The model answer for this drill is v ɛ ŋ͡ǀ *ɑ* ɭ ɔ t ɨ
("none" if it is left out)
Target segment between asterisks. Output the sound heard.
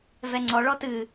ɔ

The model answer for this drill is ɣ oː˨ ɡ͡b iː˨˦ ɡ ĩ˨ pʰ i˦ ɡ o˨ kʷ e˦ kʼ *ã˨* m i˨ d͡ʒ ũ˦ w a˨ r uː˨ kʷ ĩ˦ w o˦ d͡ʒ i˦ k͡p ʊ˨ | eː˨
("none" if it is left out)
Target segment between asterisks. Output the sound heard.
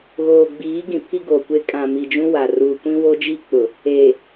ã˨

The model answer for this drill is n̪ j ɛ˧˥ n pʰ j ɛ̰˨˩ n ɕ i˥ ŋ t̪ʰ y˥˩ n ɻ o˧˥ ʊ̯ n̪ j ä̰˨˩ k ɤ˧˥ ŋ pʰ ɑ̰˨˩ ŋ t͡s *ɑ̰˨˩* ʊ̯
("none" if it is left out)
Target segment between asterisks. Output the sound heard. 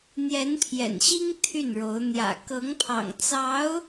ɑ˧˥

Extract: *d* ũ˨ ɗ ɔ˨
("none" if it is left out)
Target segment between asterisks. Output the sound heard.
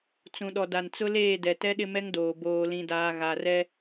t͡s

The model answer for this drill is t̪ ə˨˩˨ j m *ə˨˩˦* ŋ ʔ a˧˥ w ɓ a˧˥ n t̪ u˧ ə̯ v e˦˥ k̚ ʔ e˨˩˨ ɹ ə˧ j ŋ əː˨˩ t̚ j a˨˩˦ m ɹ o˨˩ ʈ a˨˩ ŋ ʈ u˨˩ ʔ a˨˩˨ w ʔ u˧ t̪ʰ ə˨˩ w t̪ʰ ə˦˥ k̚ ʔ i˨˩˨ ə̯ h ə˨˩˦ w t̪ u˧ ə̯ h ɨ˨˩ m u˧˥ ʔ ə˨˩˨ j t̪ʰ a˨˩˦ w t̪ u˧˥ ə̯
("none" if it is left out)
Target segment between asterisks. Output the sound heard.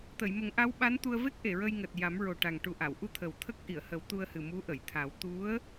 ə˨˩˦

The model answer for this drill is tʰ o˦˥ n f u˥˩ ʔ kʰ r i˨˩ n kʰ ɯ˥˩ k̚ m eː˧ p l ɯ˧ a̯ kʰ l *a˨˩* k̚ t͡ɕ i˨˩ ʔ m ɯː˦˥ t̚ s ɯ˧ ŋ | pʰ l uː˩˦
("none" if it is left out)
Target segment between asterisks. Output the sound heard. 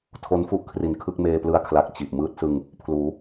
a˨˩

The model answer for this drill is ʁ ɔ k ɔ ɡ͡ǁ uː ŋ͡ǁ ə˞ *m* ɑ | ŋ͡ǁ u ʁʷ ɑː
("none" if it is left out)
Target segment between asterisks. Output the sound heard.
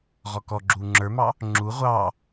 m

